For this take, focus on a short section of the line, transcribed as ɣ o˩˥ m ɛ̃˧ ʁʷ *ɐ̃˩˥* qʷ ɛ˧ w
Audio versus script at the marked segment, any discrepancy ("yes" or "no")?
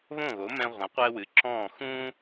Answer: yes